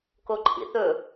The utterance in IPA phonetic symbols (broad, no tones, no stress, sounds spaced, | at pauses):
k o ǃʰ ḭ θ ɵ